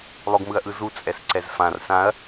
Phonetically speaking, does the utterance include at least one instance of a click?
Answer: yes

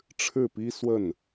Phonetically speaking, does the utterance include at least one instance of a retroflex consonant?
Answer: yes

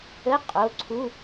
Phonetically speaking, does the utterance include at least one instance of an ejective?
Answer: yes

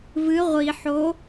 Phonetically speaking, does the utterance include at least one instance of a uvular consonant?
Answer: yes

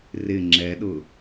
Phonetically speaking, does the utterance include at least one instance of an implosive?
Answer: yes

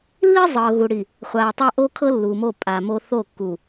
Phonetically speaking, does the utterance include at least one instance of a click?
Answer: no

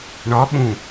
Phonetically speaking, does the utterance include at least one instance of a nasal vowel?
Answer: yes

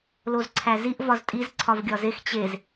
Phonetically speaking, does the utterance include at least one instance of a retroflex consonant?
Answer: no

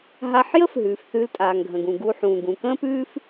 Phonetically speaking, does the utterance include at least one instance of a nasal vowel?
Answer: yes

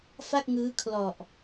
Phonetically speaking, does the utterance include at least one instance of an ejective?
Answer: no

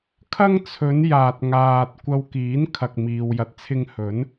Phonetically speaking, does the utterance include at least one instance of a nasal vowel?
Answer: no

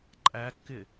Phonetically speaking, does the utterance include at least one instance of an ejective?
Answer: yes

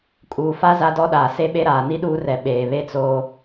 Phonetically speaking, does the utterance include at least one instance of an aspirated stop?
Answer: no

